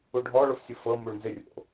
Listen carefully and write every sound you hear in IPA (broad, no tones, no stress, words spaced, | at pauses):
uɖʱɔ ɭofsʲufɤ muɭnzɪ rʲo̰